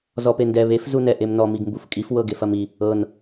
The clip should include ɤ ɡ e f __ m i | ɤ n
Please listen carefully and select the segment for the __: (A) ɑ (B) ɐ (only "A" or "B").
B